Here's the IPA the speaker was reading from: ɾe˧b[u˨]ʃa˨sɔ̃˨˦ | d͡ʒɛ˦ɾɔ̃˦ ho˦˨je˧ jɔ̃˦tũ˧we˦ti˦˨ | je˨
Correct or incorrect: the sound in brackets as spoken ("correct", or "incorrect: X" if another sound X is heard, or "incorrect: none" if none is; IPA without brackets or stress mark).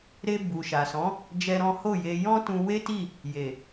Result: correct